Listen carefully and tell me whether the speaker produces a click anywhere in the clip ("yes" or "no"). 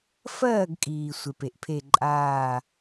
yes